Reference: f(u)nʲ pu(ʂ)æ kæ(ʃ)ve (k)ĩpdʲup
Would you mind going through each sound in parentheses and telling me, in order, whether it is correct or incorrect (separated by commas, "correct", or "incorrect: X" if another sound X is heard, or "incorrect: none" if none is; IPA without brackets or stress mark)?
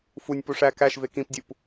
correct, correct, correct, correct